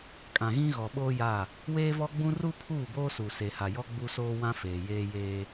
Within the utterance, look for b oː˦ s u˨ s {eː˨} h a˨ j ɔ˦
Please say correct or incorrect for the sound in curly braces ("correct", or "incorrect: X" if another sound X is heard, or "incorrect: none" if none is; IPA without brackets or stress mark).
incorrect: e˨